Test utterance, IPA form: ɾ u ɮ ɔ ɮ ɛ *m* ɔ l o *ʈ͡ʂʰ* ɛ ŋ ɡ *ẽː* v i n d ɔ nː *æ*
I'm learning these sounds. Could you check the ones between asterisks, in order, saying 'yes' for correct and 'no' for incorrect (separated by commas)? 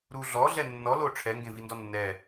no, yes, no, no